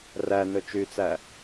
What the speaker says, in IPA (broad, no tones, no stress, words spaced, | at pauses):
rænɵ t͡ʃyt͡sæ